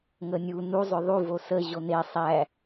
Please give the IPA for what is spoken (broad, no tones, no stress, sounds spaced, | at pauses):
ŋ ə nʲ u n u zˤ ʏ ðˤ u v o s ə ʑ o n e sˤ æ